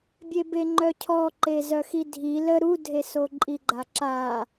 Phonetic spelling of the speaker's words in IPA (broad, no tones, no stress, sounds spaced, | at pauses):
bʲ e b e ŋ͡ǃ œ cʰ ɔ ǃ e z œ x i dʱ i l ə ɾ u dʱ e s o ǃʼ i ɡ͡ǃ a ǁ a